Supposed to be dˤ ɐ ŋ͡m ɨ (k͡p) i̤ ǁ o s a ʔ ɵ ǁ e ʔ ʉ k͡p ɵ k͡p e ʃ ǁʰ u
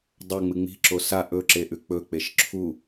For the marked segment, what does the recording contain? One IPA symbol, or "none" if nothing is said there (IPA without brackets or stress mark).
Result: ŋ͡m